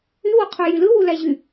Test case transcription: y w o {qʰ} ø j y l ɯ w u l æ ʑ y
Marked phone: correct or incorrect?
correct